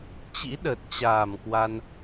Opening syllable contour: rising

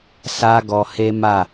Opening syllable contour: high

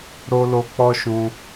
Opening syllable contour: high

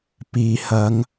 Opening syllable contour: low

